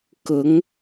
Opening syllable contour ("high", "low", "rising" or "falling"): rising